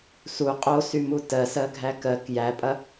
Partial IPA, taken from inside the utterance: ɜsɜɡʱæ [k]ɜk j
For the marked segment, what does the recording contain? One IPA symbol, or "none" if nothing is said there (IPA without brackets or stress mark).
k